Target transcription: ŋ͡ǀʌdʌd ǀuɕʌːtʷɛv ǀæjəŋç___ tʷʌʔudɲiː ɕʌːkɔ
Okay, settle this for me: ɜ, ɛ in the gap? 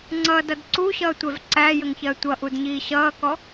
ɜ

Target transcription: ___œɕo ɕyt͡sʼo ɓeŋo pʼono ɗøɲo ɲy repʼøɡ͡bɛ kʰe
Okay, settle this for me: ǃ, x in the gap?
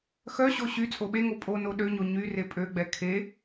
x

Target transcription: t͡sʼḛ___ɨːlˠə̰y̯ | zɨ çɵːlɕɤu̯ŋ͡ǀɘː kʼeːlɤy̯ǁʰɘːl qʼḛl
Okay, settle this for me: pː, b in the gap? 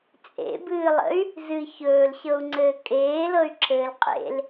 b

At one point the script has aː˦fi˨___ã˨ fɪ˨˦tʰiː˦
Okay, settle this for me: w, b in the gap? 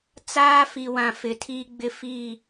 w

